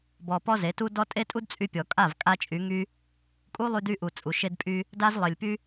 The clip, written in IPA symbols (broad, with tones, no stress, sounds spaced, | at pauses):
b ɔ˨ p ɔ˦ z e˨˦ t u˦ d ɔ˦ tʼ e˦ tʼ u˦ d t͡sʼ y˧ pʲ ɔ˨ kʼ a˦˨ v kʼ a˦ t͡ʃʼ y˨˦ ŋ y˦ | kʼ u˦ lˠ y˧ d y˧ ʔ u˨ t͡sʼ u˨ ʃ e˧ d pʼ y˧ | d a˦ z lˠ e˨ lʲ p y˦